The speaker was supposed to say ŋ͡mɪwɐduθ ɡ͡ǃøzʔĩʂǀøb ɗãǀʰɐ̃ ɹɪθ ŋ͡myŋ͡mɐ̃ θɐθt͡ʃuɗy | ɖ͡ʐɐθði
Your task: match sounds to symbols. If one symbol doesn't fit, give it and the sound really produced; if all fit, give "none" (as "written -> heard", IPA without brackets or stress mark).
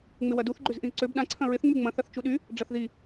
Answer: ʂ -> z